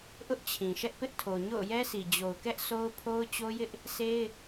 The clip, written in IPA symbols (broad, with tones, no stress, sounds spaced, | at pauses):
ʔ ʊ˦ ʔ t͡ɕʰ ĩ˨ ʃ ɛ˦ ʔ p ɪ˦ ʔ tʰ o˨ ɲ o̰˦˨ ʊ̯ j ɛ˦ s i˨ d͡ʑ o˨ ʊ̯ k ɛ˦ ʔ sʰ o˦ ʊ̯ pʰ o˦ ʊ̯ t͡ɕ o˦ j ɪ˦ ʔ | s e˦ ɪ̯